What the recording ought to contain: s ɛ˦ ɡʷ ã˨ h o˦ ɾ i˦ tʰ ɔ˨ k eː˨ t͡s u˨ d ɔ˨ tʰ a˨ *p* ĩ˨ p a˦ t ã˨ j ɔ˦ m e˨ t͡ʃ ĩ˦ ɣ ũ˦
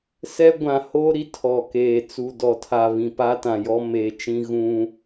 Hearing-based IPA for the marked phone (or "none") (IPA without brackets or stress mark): β